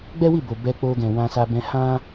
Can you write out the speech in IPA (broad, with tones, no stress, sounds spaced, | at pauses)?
ɡ͡b ɛ˦ w i˦˨ b o˨ b ɛ˧ k͡p o˧ ɡ ɛ̃˨ w ã˧ s a˧ b ɛ̃˧ h ã˦